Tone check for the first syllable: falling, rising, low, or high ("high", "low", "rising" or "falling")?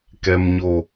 low